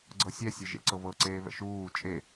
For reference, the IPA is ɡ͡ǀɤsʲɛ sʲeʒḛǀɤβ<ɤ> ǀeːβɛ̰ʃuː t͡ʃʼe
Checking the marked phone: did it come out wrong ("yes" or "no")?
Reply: no